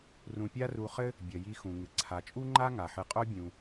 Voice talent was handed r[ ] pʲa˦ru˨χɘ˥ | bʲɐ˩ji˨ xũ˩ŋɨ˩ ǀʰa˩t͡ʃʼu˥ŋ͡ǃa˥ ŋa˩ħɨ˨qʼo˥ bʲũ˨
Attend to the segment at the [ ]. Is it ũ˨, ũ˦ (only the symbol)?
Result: ũ˨